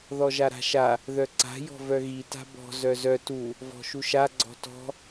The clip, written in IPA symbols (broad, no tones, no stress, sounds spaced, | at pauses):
ð ɔ ʒ a ɾ a̤ ʃ a | ð œ ǀ a̤ j ɔ̤ v œ ɣ i t a̤ b ɔ̤ z œ z œ t u | v ɔ̤ ʃ u ʃ a ɡ͡ǀ ɔ̤ t ɔ̤